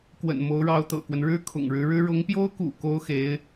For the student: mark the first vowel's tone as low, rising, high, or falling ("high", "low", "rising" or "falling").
low